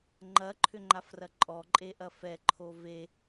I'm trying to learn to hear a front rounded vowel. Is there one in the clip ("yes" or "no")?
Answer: yes